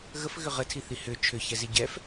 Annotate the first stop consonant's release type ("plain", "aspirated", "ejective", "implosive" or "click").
aspirated